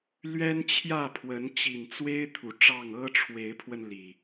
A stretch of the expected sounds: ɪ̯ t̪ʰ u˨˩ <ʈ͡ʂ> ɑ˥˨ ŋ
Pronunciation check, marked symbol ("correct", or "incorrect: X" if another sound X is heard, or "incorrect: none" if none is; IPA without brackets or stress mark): correct